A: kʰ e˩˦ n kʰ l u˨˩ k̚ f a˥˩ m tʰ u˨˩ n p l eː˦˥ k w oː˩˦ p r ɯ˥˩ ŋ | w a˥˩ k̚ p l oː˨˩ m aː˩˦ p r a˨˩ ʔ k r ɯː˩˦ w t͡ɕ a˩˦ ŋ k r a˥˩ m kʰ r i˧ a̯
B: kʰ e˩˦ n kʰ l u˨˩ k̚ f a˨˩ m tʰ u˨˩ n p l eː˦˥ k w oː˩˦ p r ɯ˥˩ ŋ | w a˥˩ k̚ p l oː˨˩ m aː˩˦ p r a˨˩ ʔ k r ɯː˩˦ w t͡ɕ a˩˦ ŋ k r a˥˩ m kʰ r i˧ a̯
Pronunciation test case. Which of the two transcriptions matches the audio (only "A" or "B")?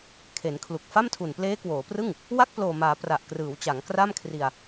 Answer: A